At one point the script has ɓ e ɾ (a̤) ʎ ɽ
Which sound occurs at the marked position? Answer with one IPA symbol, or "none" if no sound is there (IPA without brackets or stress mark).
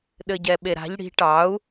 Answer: a̤